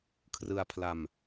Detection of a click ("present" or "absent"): absent